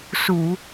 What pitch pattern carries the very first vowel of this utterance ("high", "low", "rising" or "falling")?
low